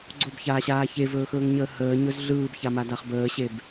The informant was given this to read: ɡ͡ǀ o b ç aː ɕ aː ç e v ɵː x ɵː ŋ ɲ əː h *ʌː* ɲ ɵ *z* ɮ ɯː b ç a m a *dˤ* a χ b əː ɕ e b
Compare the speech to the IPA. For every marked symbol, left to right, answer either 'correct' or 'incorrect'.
incorrect, correct, incorrect

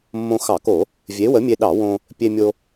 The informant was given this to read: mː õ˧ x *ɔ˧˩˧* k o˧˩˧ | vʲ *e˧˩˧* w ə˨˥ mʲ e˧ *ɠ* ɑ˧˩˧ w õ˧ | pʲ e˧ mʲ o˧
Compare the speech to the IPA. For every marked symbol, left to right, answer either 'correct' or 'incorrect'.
incorrect, incorrect, incorrect

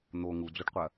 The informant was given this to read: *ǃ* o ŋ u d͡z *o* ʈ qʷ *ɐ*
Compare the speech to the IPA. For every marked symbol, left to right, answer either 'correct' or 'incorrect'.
incorrect, correct, correct

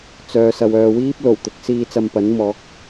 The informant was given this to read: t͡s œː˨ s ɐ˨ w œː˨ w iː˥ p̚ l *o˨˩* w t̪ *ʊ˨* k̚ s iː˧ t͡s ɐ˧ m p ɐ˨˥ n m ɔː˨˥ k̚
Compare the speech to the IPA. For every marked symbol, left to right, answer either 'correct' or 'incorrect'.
correct, correct

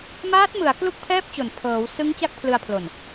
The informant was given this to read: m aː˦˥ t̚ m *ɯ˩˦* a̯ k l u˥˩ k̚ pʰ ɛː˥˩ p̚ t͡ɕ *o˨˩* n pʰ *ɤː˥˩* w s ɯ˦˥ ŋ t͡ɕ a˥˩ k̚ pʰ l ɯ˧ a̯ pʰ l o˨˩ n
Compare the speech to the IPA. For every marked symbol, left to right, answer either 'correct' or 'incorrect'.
correct, correct, incorrect

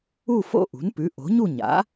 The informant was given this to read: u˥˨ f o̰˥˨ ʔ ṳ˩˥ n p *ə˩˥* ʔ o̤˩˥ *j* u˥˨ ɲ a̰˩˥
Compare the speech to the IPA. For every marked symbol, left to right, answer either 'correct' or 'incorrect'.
incorrect, incorrect

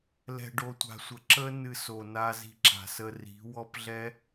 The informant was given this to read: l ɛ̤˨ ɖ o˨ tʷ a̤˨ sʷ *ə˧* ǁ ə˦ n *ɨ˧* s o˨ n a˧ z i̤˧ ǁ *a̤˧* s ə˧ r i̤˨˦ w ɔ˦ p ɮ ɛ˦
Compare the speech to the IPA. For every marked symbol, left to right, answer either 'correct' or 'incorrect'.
incorrect, correct, incorrect

